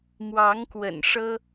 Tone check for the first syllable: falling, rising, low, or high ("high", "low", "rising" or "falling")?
rising